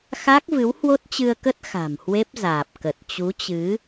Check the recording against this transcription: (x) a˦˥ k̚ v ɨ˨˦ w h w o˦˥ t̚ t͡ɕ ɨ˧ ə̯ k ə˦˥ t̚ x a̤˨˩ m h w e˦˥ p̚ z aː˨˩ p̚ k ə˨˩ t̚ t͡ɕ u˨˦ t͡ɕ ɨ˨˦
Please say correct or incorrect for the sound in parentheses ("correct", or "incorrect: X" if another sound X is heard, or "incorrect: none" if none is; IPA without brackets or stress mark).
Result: correct